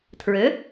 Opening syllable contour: rising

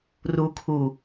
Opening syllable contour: low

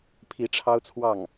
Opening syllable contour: rising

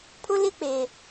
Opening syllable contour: high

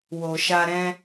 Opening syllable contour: low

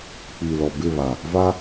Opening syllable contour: low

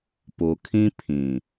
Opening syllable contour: low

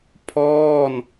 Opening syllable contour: falling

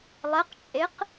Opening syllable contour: rising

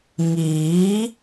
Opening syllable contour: rising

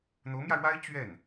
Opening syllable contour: rising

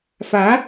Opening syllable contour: rising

